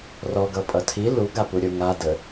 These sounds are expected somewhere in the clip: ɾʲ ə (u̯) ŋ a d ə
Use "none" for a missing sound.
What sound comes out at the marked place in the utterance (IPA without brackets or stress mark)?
u̯